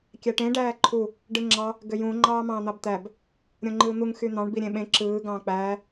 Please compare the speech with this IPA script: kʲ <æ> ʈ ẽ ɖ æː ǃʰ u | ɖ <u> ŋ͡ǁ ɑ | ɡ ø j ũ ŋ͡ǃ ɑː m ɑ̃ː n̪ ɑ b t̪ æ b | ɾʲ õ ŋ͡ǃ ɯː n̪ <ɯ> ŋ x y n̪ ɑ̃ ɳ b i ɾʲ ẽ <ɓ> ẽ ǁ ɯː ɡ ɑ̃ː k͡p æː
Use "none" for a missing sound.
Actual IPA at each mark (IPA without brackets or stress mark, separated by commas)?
æ, ɯ, u, ɓ